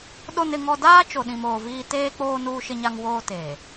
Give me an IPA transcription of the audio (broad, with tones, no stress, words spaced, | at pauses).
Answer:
ɗo˦nɪ˦ŋɔ˦ daː˦t͡ʃo˨ɗĩ˨m oː˨viː˦ teː˦k͡poː˦ nuː˦ʃɪ˦ɲa˦ŋ woː˦te˨